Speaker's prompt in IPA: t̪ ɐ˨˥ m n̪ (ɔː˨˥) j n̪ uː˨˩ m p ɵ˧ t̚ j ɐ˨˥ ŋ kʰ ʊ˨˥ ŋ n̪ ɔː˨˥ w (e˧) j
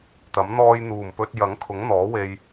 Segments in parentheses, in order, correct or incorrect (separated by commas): incorrect, correct